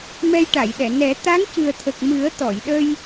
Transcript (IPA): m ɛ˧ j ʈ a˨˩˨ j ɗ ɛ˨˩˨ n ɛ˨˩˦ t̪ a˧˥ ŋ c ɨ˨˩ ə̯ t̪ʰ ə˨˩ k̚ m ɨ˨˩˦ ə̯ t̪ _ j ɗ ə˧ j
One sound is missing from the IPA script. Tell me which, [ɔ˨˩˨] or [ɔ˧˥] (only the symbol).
ɔ˨˩˨